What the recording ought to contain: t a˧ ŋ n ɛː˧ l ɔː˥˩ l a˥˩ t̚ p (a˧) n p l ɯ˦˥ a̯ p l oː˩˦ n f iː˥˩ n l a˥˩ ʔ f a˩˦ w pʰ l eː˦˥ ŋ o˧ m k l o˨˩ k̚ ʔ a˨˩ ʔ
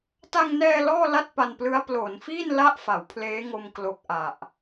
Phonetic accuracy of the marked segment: correct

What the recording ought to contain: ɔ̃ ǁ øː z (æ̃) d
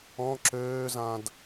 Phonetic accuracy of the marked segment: incorrect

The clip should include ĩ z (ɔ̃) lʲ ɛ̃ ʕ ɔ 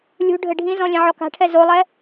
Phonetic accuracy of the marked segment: correct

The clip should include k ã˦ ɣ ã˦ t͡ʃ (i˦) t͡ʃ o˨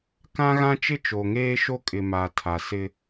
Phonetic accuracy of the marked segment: incorrect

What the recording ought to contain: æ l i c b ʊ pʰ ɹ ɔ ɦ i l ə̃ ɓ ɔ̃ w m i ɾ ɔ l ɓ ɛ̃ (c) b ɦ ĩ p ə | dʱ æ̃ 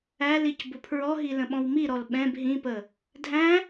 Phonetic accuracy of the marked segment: incorrect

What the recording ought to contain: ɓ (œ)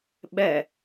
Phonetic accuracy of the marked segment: incorrect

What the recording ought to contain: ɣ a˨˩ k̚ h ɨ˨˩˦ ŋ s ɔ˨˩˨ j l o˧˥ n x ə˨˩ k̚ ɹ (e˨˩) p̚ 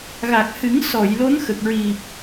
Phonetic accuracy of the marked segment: incorrect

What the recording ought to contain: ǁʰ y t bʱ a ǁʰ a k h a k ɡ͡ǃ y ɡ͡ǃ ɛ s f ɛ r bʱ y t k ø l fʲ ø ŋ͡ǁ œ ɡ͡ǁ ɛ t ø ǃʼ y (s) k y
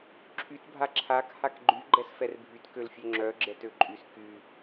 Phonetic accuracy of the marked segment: correct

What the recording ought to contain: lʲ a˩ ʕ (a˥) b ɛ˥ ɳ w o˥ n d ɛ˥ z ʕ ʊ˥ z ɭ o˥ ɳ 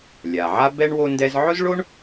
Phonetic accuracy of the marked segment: correct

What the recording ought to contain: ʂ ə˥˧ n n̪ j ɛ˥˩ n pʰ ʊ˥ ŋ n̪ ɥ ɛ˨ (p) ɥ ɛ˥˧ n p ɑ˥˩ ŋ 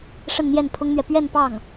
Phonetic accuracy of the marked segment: correct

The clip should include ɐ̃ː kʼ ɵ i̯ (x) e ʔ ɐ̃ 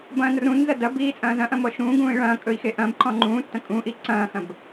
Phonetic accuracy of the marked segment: correct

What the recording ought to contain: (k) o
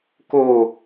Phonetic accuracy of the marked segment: correct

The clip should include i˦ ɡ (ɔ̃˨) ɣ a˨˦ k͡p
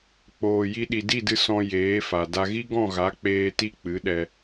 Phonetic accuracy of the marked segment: incorrect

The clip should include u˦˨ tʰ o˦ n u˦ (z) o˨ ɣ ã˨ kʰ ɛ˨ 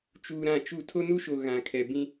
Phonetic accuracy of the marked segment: incorrect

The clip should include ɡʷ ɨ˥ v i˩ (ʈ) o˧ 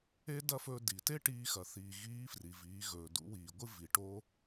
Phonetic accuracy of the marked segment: correct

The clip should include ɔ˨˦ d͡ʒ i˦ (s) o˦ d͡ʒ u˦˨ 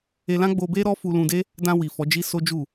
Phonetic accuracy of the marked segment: correct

